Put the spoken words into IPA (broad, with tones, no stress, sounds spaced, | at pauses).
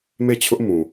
m e˦˨ t͡ɕʰ ʊ˦ ʔ m ũ˨